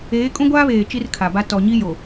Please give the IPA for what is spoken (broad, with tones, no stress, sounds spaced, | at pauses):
eː˨˦ kʼ ũ˦ ɡʷ aː˦ β eː˨ t͡ʃ i˦ r kʰ a˨ b a˦ t ɔ˨ ɲ i˦ j o˨